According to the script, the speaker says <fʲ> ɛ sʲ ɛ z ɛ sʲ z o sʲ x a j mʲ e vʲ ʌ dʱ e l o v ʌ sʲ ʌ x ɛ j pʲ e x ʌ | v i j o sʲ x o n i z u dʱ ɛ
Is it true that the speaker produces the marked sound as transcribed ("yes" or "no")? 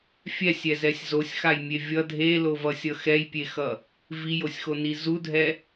yes